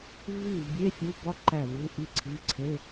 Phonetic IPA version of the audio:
v i˥˩ v bʲ e˧˥˧ fʲ u˧˥˧ b ɒ˥ ǃ æ˥˩ v u˧˥˧ ʔ i˥ ǀʰ i˧˥˧ ǀʰ e˧˥˧

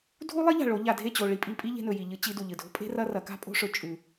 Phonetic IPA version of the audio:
dʱ u˦ lˠ i˦ ʎ a̤˨ ɭ o˨˦ ʎ a˨ dʱ e˦˨ t͡ɕ o˨ ɭ i˧ pʼ i˧ pʼ i˦ ʎ e̤˧ n ɵ˨ j i˨ ʎ ɨ˧ t͡ɕ i˧ d u˨ ʎ ɨ˨ dʱ o̤˦ pʼ e̤˦ r ɐ˧ r ɐ˨˦ k a̤˦ pʼ o̤˦ ʂ ɵ˨ t͡ʃʼ ʉ˨

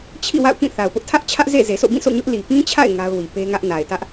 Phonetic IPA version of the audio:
t͡ɕʰ ḭ˦˨ w a̰˦˨ ʊ̯ k ĩ˦˨ θ a˨ ʊ̯ p ʊ˦ ʔ tʰ ä˦ ʔ t͡ɕʰ ä˦ ʔ z ḛ˦˨ z e˨ s o̰˦˨ b ĩ˦˨ s o̰˦˨ ɲ ʊ˦ ʔ l i˨ p ĩ˦ t͡ɕʰ a̰˦˨ ɪ̯ ŋ a˦ ʊ̯ w i˨ p e˦ ŋ ä˦ ʔ n a˨ ɪ̯ t ä˦ ʔ

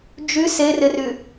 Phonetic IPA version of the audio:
d͡ʒ y s e r ɪ r y

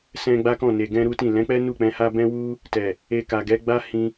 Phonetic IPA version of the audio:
s ɛ̃˧ ɡ͡b a˦ k ɔ̃˦˨ n e˨ ɡ ɛ̃˧ ɾ u˦ t ĩ˦˨ l ɛ̃˨˦ k͡p ɛ˦ n u˦˨ k͡p ɛ̃˧ h a˦ b ɛ̃˦ w u˦ | t ɛ˨ | e˧ k a˨ ɡ ɛ˨˦ ɡ͡b a˦ h ĩ˧

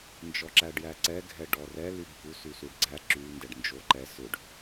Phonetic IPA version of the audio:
n d͡ʒ ɔ ǁ æ ɖ j æ ǀ ɛ ɡʱ ɛ ɖ ɔ r ɛ l y bʱ u s y s u ɖ ɡ͡ǀ æ ǁ y n d ɛ ɖ n d͡ʒ o ǃ ɛ s ʏ ɖ

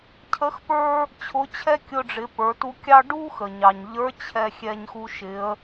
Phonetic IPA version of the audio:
cʰ ə˧˥ x p ə˞˥ | t͡ɕʰ ʊ˧˥ t͡ɕʰ ɛ˥ kʲ ʊ˧ ɖ͡ʐ ɪ˩˧ p ə˞˩˧ t u˧ kʲ ɑ˥ ɖ u˥ x ə˩ ɲ ɑ˩ ɲ ʎ ə˞˧˥ t͡ɕʰ ɛ˧ xʲ ɛ˧ ɲ x u˧ ʃ ɪ˩˧ ə̯

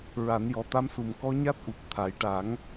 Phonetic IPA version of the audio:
ɹ a˨˩˦ n j ɔ˨˩ t̪ a˧˥ m s u˨˩ m k ɔ˧˥ ɲ a˦˥ t̚ ʔ u˨˩ p̚ t̪ʰ a˨˩˦ j ʈ a˨˩˦ ŋ

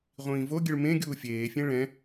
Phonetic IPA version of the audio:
ʁʷ ĩː v o ɡʲ ɨ ɭ m ẽ ɡʲ uː fʲ eː fʲ ẽ ɭ ɛ̃

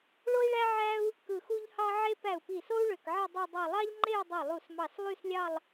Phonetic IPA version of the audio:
ɭ o˥ i̯ ɭ æ˥ ʕ æ˥ u̯ | k ɯ˧˩ x u˥ ʎ h ɑ˥ ʕ e˥ p æ˧˩ u̯ p i˧˩ s o˥ u̯ ɭ ø˧˩ k ʕ e˥˧ dˤ i˥˧ dˤ ɑ˥˧ lˠ ɑ˥ ʎ ŋ͡ǃ e˥˧ u̯ dˤ i˧˩ lˠ u˧˩ s m ɑ˧˩ s lˠ y˥˧ s lʲ ɑ˥˧ lˠ

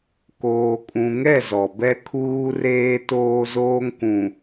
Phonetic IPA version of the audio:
k oː˨ kʼ ũ˨ ŋ ɛ˦˨ z ɔ˨ b ɛ˦ kʰ uː˦ r eː˦ t oː˦ z oː˦ ŋ k ũ˨

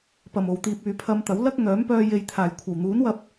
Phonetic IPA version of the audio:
p ɐ˨˩ m o˨˩ w t̪ iː˨ p̚ yː˨ pʰ ɐ˧ m t̪ ɐ˨˥ w l ɐ˥ k̚ ŋ œː˨˥ m p œː˧ j e˨ j t̪ʰ aː˨˩ j kʷʰ ɐ˨˩ w n̪ uː˨˥ n w ɐ˧ p̚

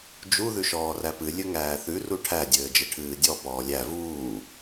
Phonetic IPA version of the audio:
d͡ʒ u ð ʉ ʃ ɔː r æ p ɨ lʲ ɘ ŋ æː θ ʉ r u ʈʰ æ dʲ ɘː d͡ʒ ɘ ʈʰ ɨː dʲ ɔ p ɔː lʲ æ v uː

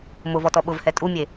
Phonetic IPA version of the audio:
m ʊ v ɔ t ɔ ɓ ʊ v h ɛ tʼ u mʲ e

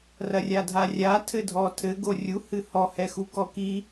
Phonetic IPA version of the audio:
r ɐ rʲ a dʱ a rʲ a tʰ ɘ dʱ ɔ tʰ ɘ ɡ o rʲ u h ɨ h ɔ h ɛ x u k ɔ k i

